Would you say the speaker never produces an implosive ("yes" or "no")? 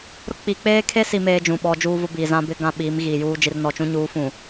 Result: no